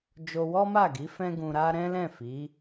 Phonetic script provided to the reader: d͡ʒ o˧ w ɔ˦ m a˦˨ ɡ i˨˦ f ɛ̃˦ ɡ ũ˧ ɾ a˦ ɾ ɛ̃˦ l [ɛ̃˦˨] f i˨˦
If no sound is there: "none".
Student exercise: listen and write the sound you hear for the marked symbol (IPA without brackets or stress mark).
ɛ̃˦˨